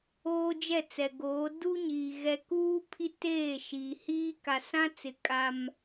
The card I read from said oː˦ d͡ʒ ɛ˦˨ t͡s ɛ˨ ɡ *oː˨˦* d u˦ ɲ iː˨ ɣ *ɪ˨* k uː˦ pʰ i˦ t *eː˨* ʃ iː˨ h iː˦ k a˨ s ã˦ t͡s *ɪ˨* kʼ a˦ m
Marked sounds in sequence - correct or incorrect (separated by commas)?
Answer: correct, incorrect, incorrect, correct